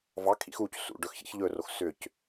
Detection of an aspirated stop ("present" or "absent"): present